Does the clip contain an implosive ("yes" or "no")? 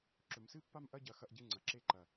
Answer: no